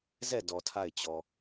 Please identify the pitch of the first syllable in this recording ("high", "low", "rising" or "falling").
falling